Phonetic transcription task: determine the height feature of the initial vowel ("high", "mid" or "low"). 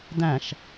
low